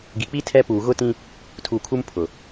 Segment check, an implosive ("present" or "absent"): absent